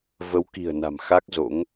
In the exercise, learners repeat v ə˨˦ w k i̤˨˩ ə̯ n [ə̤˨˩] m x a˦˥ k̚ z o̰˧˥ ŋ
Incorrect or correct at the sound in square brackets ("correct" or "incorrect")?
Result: incorrect